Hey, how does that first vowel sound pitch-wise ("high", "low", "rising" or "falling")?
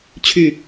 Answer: low